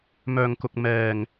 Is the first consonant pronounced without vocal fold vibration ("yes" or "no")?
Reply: no